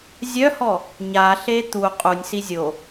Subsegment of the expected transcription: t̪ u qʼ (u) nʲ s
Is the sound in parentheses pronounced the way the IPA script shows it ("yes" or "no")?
yes